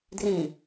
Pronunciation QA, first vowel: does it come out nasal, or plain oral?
nasal